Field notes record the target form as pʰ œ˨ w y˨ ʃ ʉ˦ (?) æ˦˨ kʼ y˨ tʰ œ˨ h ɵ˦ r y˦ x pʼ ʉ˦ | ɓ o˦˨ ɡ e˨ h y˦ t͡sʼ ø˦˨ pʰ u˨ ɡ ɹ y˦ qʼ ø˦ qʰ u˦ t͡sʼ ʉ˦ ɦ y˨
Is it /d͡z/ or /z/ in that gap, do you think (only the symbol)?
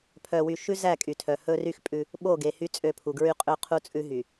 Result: z